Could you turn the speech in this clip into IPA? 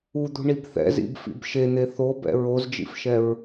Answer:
u d̪ ṳ ɳ i b θ ɛ̰ z ḭ b f ḭ b ʃ e n̪ e θ o b ɛ̰ ɹ o z d͡ʒ ḭ f ʃ ɛ ɹ

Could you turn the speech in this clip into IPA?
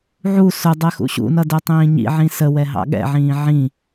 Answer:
ʕ u s ʊ dˤ ɛ x ṵ ɕ ṵ n ʌ d ɛ tˤ ĩː ɲ ḭ ʕ ĩ s ə w ɛ ɦ ɑ̰ ɠ ɛ̰ ʕ ĩː ʕ ĩ

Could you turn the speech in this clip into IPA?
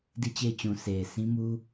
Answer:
d i˦˨ t͡ɕ e˦˨ ɪ̯ t͡ɕ ũ˨ s e˨ ɪ̯ s ĩ˦ m u˦

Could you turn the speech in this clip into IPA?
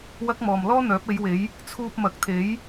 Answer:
w ɐ˥ k̚ m ɔː˨ m l ɔː˥ n̪ œː˨˥ p̚ e˨˧ j w e˨˥ j | t͡sʰ uː˧ p̚ m ɐ˨˥ k̚ t̪ʰ e˨˥ j

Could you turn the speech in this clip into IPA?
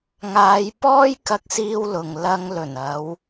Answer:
ŋ aː˨˧ j p ɔː˥ j k ɐ˧ k̚ s iː˧ w l ʊ˨ ŋ l ɐ˧ ŋ l ɵ˨˩ n ɐ˨˧ w

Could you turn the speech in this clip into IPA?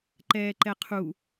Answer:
ǃ ɛː ǃ ɛ qʰ u

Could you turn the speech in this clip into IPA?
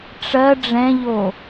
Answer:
ʈ͡ʂ ɜ ɖ͡ʐ ɛ̃ ʎ o

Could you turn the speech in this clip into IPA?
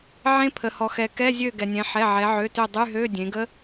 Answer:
ʕ ẽ˦˥ pʰ ə˩ h ɔ˩ x ɛ˩ k ɛ˧˥˧ zʲ ø˦˨ ɡ ɛ˩ nʲ ɛ̃˩˧ ħ ɛ˩˧˩ ʕ ɛ˩˧ ʕ ø˩˧˩ t ø˦˨ dˤ y˧˥˧ ɦ ø˧˥˧ dʲ ẽ˩˧ ɡ ə˦˥

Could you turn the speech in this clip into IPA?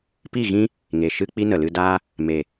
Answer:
p i˦˨ ɣ ĩ˦ | ŋ e˨ ʃ ɨ˦ k͡p i˦ n ə˨ l ɨ˧ d aː˦ | m e˨

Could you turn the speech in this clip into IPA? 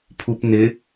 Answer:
pʰ u p n ɪ

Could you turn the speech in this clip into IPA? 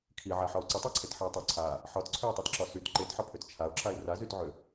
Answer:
kʰ i ʕ a ħ ɒ ʊ̯ ǀ ə tˤ a ǀʰ e t ħ ə ʊ̯ tˤ a ǀʰ a | ħ ɒ t ǀʰ ø ʊ̯ tˤ ɛ t ǁ ɒ s y t ǃ e t ħ ɒ pʰ ø t t͡ʃʰ a ʊ̯ ǁ a ɪ̯ r a z y t ʕ ø

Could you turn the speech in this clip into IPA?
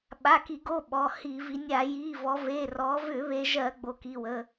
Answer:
ɓ a˩˧˩ k i˧˩˧ ɡ o˩˧˩ ɓ ɔ˩˧˩ h i˧˩˧ v i˩˧ nʲ a˧˩˧ j i˩˧˩ v ɔ˩˧ v e˩˧˩ r ɔ˩˧ v ʏ˧˩˧ β e˩˧ ʒ ɜ˧˩˧ ɡ͡b o˩˧ k i˩˧˩ w ə˩˧˩

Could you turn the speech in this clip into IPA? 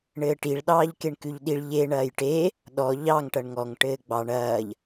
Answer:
ɳ ɘː ʈ i ɭ ɗ ɑː ʎ k e ɳ k ʉ ʎ ɗ i ɭ ʎ e ɳ ɐː j ʈ e | ɗ ɔ ʎ ɑ ŋ ʈ ɐ ɳ ŋ ɔ ŋ ʈ ɘː ɡ͡b ɑ ɳ ɐː ʎ

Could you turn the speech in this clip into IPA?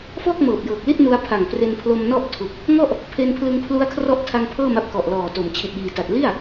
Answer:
f ɔː˥˩ k̚ m ɤː˨˩ p̚ j ɤː˨˩ k̚ l i˥˩ t̚ n u˧ a̯ pʰ a˨˩ ŋ p r e˧ n pʰ l o˧ m n ɔ˥˩ ʔ tʰ u˨˩ k̚ | ŋ ɔ˥˩ ʔ | pʰ e˧ n pʰ l ɯ˧ ŋ pʰ l u˦˥ a̯ kʰ r ɔ˦˥ ʔ tʰ a˧ ŋ pʰ ɤː˥˩ m a˦˥ p̚ k ɔ˨˩ ʔ l ɔː˨˩ t o˩˦ m t͡ɕʰ i˨˩ t̚ j iː˨˩ t a˨˩ t̚ l i˥˩ a̯

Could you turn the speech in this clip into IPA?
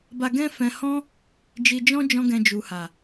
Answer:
b a˧ ɡ ɛ̃˦ f ɛ̃˧ h ɔ̃˦ | d͡ʒ i˧ d͡ʒ ɔ̃˦ d͡ʒ ɔ̃˦ ɡ ɛ̃˧ d͡ʒ u˨ h a˨

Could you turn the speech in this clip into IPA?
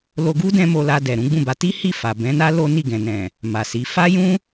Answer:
l o˧ ɡ u˦ d ɛ̃˦ m o˧ l a˧ d ɛ˨ ɾ ũ˨˦ ɡ͡b ũ˦˨ b a˧ t i˦ h i˦˨ f a˨ b ɛ̃˨˦ n a˦ l o˦ n i˦˨ ɡ ɛ̃˨ n ɛ̃˨ | m a˨ s i˨˦ f a˦ j ũ˦

